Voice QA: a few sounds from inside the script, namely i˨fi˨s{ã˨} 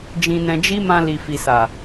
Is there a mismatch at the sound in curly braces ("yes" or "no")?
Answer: yes